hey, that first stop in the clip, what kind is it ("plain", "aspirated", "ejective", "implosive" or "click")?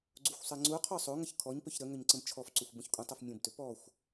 click